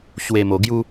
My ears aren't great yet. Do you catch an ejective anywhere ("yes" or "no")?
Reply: no